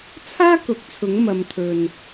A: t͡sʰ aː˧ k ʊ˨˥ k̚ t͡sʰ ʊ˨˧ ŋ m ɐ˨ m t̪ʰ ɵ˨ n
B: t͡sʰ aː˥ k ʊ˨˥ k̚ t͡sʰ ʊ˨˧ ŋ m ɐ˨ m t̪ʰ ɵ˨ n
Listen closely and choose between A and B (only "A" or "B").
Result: B